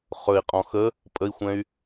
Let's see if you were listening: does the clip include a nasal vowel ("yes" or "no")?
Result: yes